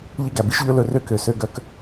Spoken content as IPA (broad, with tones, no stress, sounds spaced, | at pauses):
ʎ i˦ ɡ æ˨ b i˦ ʃ ʎ ɵ˦ l ɵ˨ r ø˦ k ø˨ s ø˦ ɡ œ˦ k